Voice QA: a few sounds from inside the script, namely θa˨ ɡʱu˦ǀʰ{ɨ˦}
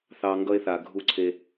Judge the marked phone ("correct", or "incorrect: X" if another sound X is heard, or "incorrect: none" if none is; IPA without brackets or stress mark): incorrect: e˦